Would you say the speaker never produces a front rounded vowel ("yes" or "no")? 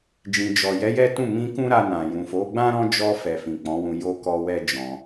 yes